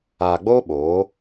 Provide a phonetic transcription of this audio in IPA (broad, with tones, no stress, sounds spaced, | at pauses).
aː˨ ɡ͡b oː˦ ɓ oː˨˦